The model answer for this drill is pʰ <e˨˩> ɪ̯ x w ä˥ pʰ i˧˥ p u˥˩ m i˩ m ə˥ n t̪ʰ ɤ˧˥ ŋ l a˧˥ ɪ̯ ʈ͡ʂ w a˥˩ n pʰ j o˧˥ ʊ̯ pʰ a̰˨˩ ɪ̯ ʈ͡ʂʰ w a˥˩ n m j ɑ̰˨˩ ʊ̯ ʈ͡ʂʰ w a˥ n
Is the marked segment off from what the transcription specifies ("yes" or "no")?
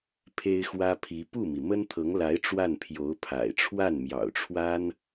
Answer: yes